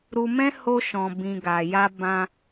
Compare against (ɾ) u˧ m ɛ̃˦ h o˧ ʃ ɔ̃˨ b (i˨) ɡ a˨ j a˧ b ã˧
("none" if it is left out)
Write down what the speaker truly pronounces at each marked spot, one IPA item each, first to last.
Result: ɾ, ĩ˨

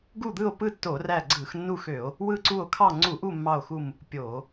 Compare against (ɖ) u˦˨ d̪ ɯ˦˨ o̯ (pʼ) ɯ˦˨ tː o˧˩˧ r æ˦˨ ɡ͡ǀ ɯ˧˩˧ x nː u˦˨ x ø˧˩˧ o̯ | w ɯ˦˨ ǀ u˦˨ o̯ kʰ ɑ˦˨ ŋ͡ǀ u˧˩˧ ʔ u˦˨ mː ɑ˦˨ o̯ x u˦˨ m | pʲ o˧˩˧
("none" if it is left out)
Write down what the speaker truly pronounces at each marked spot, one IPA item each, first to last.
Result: ɡ, p

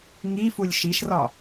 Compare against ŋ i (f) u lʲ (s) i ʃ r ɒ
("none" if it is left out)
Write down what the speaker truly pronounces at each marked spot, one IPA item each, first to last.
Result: f, ʃ

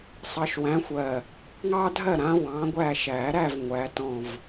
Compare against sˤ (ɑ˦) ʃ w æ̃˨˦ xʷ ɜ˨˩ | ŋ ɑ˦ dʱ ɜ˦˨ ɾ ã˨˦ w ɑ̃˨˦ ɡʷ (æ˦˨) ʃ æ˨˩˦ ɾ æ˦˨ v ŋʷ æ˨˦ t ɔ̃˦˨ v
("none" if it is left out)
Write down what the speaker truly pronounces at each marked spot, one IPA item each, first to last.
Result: ɑ˨˦, æ˦˨

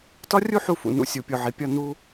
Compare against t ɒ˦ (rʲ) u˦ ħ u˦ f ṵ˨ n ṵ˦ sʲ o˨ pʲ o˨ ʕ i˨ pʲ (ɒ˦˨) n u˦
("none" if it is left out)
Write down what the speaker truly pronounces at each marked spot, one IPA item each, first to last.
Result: rʲ, ɒ˦˨

